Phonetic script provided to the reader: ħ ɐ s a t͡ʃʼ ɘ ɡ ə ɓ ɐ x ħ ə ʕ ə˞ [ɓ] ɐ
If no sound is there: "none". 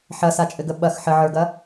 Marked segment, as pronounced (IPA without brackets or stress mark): ɡ